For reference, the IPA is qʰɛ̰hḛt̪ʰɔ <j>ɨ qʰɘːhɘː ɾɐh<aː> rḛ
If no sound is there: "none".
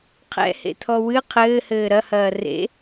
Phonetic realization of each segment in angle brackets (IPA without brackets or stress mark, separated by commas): w, ɐː